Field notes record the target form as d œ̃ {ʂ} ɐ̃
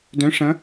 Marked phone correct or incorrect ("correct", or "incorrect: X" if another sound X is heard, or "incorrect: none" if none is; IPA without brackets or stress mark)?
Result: correct